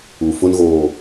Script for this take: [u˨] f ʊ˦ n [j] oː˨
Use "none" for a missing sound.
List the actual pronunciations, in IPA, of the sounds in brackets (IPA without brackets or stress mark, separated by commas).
u˨, ɣ